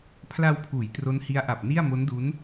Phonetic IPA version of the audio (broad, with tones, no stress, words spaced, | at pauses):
pʰla˧wpʰuː˩˦j tro˦˥nhi˦˥a̯ʔa˨˩p̚ni˥˩a̯ mo˦˥ndu˦˥n